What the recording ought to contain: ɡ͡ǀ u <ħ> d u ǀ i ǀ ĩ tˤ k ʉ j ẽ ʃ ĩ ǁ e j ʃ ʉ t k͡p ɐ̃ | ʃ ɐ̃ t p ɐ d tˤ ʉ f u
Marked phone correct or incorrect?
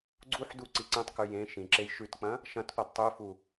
correct